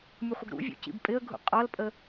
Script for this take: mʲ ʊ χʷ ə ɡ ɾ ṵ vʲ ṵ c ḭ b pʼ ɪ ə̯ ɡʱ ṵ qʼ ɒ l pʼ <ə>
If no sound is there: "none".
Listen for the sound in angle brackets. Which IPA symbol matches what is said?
ə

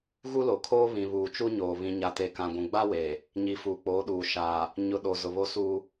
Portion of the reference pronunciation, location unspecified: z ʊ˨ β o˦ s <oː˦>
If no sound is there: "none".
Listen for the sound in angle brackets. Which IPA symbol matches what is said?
uː˦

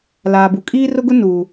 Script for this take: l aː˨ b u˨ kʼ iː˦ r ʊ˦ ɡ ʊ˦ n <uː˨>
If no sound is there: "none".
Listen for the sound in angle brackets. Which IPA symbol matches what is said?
uː˨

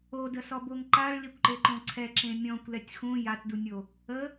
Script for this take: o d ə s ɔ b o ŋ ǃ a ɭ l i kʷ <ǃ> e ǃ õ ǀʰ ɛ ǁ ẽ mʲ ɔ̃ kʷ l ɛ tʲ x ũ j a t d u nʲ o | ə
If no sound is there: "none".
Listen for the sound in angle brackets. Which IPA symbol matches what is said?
ǃ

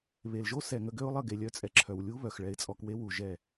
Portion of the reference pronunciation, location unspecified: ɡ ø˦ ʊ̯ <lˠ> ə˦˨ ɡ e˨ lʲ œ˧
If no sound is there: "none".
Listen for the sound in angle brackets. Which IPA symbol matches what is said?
lˠ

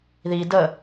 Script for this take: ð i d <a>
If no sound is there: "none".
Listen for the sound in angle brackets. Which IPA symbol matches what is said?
ə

